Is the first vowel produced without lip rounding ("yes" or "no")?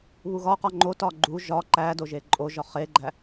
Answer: no